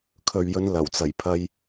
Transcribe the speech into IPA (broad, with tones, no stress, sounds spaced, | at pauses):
kʰ ɵ˨ ɥ j ɵ˨˧ n l ɐ˨˩ w t͡s ɐ˨˩ j pʰ ɐ˧ j